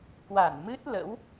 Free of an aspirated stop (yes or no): yes